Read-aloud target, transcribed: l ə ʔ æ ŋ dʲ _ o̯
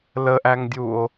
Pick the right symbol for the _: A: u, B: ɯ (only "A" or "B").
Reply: A